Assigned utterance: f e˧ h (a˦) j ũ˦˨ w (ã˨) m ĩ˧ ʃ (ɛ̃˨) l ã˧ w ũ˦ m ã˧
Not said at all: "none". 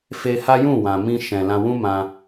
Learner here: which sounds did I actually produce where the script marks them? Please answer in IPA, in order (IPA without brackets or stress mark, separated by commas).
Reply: a˦, ã˨, ɛ̃˨